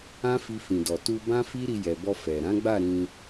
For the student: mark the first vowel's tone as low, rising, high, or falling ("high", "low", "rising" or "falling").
high